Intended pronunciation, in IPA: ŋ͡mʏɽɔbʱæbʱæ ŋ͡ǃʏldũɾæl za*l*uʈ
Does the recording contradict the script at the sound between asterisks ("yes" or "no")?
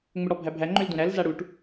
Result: yes